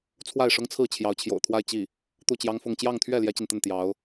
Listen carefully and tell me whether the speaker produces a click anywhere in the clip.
no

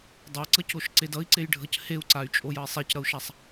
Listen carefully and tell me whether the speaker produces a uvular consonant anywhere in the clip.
no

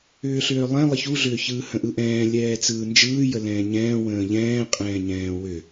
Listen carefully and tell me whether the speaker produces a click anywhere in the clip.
no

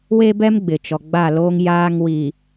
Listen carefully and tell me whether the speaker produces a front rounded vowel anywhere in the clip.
no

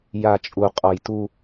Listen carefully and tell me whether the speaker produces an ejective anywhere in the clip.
yes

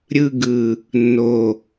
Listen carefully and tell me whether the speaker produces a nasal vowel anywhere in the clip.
no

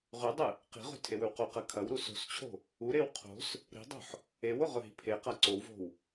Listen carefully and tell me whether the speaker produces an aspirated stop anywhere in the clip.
yes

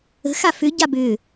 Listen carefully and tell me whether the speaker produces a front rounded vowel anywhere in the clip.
yes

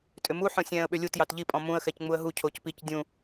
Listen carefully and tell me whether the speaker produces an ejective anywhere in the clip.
yes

